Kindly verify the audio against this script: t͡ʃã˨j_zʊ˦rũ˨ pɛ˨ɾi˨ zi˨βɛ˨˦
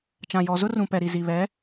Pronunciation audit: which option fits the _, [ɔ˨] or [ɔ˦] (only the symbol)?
ɔ˨